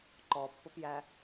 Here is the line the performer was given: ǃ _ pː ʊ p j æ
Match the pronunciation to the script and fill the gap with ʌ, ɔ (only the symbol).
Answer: ɔ